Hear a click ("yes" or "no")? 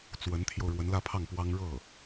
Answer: no